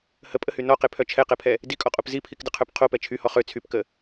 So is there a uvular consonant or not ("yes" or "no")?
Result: yes